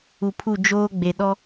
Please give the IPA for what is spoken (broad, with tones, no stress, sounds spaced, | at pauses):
u˨ pʰ u˦˨ d͡ʒ oː˦ ɡ͡b e˨ ɗ ɔ˦